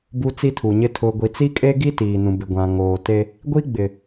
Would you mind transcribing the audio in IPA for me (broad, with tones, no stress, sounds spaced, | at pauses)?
b u˨ t͡s i˦ tʰ u˨ ɲ ɪ˦ tʰ ʊ˨ ɡʷ i˨ t͡s i˦ kʼ eː˦ ɡ i˦ t iː˨ n ũ˨ b ɪ˨ ɡʷ ã˨ ŋ oː˨ t e˦ | ɡʷ i˦ ɡ͡b ɪ˨